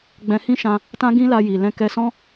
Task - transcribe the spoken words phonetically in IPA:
ɡ͡b ɛ̃˧ h ĩ˦ ʃ ã˧ | t ã˦ ɡ ĩ˦ l a˧ j i˨ l ɛ̃˧ k ɛ˧ s ɔ̃˦

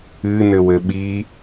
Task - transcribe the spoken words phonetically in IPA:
ɨ n ɘ w ɘ ɓ i

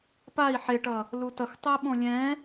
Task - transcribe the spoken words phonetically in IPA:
p a i̯ ħ e ʈ ʌ | l u t ʌ x tˤ ɯ i̯ ɓ õ lʲ ɛ̃

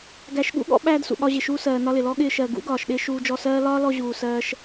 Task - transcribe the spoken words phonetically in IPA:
ɡ æ˧ ʃ ɠ ṵ˦ ɠ ɔ̰˦ ɓ æː˦ d s ṵ˨ ɠ ɒ˧ ʑ ɪ˨ ʃ uː˧ s ɜː˨ n ɒ˧ l ɪ˨ l ɔ˦ ɠ ɪː˧ ʃ ɜ˨ ɡ ṵ˦ ɡ ɒː˨ ʃ ɗ ɪː˧ ʃ uː˧ d͡ʒ ɔ˧ s ɜː˦ l ɒː˦ l ɔ˧ ʑ uː˨ s ɜː˧ ʃ

